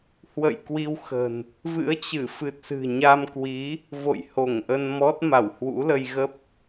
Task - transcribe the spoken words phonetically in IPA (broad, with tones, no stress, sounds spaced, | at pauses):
h w ə̰˧˨ j k w i˧ w x ə̤˨˩ n | v ɨ̰˧˥ ə̯ t͡ɕ ɨ˧˩ f ɨ˨˩ t̚ s ɨ̤˨˩ ɲ a˧ m k w i˨˦ | v o̰˧˨ j h o˧˩ ŋ ʔ ə˧ n m ɔ˦˥ t̚ m a˧˩ w h w ṵ˧˥ l ə˧ j ɣ ə˦˥ p̚